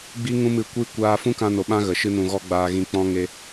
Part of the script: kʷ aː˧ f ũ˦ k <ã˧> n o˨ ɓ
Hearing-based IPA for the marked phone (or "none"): ã˧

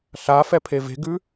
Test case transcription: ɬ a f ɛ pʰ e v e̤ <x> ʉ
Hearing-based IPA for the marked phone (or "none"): ɡ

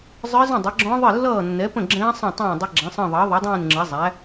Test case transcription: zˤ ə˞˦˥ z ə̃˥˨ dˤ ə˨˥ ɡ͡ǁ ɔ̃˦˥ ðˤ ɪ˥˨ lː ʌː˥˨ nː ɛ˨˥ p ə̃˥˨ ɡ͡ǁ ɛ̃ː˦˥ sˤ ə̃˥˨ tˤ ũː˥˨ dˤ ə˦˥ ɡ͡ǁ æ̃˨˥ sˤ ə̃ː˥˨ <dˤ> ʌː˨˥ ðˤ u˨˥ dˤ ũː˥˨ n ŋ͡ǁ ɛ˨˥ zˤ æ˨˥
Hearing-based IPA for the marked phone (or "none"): ðˤ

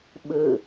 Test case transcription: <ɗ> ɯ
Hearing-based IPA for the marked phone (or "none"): ɓ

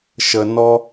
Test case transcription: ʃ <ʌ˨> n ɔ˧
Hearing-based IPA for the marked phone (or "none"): ə˨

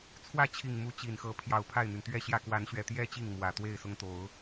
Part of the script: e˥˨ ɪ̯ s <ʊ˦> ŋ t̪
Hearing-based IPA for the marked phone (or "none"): ʊ˦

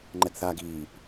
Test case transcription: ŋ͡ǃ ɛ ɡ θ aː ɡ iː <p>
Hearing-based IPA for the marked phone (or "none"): p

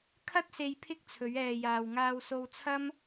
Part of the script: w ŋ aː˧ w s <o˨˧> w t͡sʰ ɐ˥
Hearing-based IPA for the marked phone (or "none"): o˧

